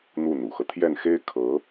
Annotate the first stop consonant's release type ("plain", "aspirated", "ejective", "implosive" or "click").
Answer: aspirated